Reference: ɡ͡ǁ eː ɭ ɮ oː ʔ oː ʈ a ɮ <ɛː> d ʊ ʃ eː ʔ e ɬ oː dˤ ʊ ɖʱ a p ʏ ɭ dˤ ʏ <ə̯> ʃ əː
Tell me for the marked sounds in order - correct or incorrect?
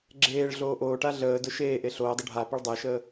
incorrect: əː, correct

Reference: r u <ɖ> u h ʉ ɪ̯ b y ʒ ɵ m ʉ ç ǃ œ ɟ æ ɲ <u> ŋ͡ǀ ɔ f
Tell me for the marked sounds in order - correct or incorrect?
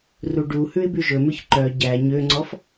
correct, incorrect: ø

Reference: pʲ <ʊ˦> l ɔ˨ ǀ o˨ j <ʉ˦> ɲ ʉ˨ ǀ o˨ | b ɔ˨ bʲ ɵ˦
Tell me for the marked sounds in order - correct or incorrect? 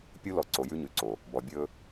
incorrect: u˦, correct

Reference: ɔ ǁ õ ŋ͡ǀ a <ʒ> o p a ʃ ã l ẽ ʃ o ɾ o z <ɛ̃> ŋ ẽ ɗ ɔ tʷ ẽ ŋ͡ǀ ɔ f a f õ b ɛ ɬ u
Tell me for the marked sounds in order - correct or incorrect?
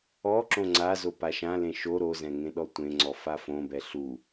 incorrect: z, correct

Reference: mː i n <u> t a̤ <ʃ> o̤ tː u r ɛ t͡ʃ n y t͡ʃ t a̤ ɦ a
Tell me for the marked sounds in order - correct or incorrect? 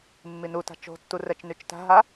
correct, incorrect: t͡ʃ

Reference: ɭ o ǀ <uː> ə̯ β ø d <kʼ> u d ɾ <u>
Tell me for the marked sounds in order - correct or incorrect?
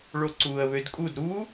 correct, correct, correct

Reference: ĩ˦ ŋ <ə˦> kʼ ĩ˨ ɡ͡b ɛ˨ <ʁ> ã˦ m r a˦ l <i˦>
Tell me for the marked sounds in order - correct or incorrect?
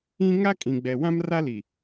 incorrect: a˦, incorrect: w, incorrect: i˨

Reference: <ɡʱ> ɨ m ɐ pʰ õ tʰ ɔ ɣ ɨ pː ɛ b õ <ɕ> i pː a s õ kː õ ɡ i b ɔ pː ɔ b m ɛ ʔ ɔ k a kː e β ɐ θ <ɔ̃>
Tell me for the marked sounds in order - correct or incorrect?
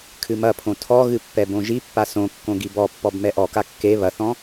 incorrect: kʰ, incorrect: ʒ, correct

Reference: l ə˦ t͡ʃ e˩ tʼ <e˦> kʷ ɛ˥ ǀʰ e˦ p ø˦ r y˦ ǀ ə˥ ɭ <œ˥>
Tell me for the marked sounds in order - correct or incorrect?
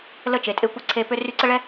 correct, incorrect: ɛ˥

